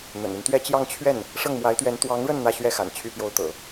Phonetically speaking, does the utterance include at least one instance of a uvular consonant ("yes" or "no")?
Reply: no